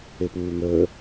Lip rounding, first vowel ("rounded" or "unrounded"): unrounded